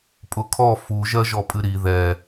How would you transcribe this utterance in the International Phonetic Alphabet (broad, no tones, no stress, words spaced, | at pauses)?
pʼʊkʰɔ fu ʒɜʒɔpʼɨɾi ðɛ